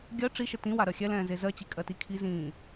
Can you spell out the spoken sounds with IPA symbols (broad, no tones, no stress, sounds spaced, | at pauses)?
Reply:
ɡʲ ɜ ʈ͡ʂ i ʃ ə t ĩ w a ɾ ɜ xʲ ɛ l ɛ̃ː z e z ɜ t͡ɕ i kʼ ɜ t i kʰ i z ĩː